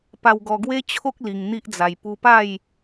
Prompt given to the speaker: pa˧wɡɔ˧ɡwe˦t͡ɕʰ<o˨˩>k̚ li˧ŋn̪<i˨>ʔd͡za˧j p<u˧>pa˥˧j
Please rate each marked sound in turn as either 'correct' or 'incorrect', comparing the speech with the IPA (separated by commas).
incorrect, incorrect, correct